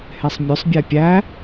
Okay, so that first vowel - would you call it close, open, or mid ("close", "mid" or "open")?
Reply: mid